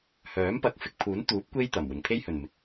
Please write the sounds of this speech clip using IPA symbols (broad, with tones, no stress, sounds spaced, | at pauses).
h œː˨˥ m p ɐ˨˥ k̚ f ɪ˨ k̚ pʰ uː˨˥ n t̪ uː˨˥ p̚ kʷ e˥ j t̪ ɐ˨˩ m w ɪ˨˩ ŋ pʰ e˥ j h ɵ˨˩ n m ɪ˨ k̚